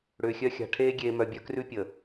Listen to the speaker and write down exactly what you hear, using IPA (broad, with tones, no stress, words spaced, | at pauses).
ɽʏː˨xʲœ˦xʲa̤˨ ʈʰeː˦ ɡʲeː˨mœ˨bʲœ˦krʉ˦ pʲə˨